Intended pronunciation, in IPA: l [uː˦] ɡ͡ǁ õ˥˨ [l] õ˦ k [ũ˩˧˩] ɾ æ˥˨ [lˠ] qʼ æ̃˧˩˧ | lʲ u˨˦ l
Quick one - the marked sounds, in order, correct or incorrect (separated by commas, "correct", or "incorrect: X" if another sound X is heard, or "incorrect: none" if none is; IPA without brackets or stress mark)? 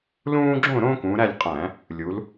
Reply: incorrect: ũː˦, incorrect: ɾ, incorrect: ũ˨˦, incorrect: lʲ